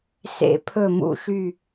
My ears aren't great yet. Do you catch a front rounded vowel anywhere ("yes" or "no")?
yes